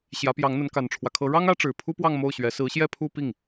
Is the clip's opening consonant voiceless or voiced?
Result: voiceless